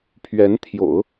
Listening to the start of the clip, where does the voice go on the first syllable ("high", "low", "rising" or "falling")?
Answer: rising